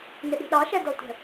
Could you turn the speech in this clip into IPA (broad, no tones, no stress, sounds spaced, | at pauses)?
n ɪ ɗ i̤ ɗ ɑ ʃ ɛ d ɔ tʷ ə̤